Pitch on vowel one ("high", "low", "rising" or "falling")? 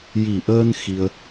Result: low